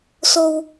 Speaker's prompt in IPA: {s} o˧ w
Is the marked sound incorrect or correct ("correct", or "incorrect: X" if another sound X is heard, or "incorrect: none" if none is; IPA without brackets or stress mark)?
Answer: correct